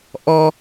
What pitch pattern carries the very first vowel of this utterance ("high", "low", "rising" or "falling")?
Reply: high